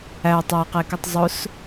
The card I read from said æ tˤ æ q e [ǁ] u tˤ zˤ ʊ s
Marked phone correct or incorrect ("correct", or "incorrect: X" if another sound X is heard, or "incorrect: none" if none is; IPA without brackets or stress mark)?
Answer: incorrect: k